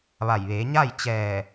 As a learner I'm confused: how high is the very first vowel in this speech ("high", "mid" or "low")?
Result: low